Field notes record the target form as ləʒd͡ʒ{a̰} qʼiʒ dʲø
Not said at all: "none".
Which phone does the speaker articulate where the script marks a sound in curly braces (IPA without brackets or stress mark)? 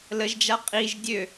a